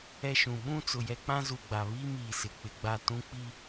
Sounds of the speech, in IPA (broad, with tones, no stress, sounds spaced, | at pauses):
ɛ˦ ʃ ũ˨ ɓ ũ˦ t͡s ʊ˨ j ɛ˦ k͡p ã˦ z u˨ ɡ͡b a˨ β i˦ m iː˨ s ɪ˨ k͡p ɪ˨ ɡ͡b a˦ t ũ˦ k͡p i˦